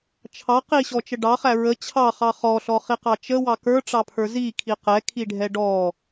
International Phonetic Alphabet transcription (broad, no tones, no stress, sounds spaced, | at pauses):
t͡ʃʰ ɑ q i ɕ ɔ t͡ʃ ə ɖ ɑ χ æ ɹ ə t͡ɕʰ ɑ χ ɑ χ ɔ ɬ ɔ χ i q ɑ t͡ʃ ə w ɑ k ə˞ ʈ͡ʂ ɑ pʰ ə˞ z i kʰ i q ɛ kʰ i ɖʱ ɛ ɖ ɔ